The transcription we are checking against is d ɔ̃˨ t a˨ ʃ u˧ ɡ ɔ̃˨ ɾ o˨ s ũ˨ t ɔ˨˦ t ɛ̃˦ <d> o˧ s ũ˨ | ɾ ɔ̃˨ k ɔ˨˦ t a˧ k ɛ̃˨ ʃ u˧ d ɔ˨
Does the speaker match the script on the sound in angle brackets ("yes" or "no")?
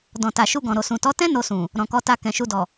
no